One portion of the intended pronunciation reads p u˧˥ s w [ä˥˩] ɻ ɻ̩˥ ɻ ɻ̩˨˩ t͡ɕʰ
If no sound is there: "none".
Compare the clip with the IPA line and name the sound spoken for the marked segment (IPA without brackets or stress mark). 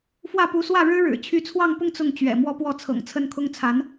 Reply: ä˥˩